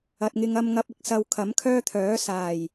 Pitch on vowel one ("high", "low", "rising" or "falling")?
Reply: low